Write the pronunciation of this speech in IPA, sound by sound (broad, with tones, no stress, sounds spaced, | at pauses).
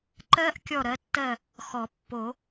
ǃ ɜ˦˥ ʔ kʲ ɔ˦˨ ɾ ɜ˩˥ tː ɜ˦˨ | x ɔ˨˩˦ pː o˨˩˦